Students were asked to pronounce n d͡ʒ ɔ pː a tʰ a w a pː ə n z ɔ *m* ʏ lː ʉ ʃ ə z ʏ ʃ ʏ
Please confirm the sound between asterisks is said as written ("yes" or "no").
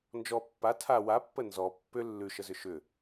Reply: no